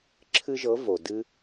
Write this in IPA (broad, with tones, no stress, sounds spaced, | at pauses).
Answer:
ǁʰ ɨ˥ ʒ ɤ˧˥ v o˨ d ɨ˥